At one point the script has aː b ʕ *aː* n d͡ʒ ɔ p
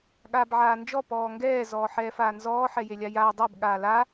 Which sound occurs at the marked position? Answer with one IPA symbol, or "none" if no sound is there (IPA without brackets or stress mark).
aː